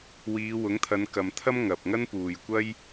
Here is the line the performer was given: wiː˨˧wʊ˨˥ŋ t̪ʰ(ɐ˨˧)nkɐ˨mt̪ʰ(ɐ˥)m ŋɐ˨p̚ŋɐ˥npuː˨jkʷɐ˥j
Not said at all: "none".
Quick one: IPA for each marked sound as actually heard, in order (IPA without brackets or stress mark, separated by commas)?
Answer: ɐ˨˧, ɐ˥